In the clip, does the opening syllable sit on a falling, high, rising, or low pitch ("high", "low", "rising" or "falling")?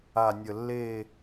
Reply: low